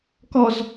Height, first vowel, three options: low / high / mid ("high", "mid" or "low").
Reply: mid